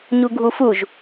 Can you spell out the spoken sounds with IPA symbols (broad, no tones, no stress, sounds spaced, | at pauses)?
ɲ u ɡʱ u f u ʒ